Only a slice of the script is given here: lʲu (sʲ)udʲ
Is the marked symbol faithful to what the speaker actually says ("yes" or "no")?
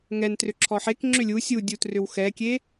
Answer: yes